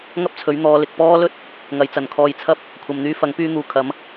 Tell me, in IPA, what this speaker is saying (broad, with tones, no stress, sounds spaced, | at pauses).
ŋ ɐ˥ p̚ t͡sʰ ɵ˨˥ ɥ n̪ ɔː˨˧ l ɪ˨ k̚ p ɔː˥ l ɵ˥ t̚ | ŋ ɐ˨˧ j t͡s ɐ˨˩ n kʰ ɔː˧ j t͡sʰ ɐ˥ p̚ | kʷʰ ɐ˨ m n̪ yː˧ f ɐ˨˥ ŋ p yː˧ n̪ uː˨˧ kʰ ɐ˨˧ m